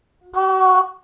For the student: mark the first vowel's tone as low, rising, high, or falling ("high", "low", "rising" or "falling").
high